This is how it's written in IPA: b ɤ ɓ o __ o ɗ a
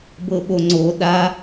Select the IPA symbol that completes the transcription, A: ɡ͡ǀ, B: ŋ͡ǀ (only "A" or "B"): B